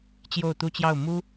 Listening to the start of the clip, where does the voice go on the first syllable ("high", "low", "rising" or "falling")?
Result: falling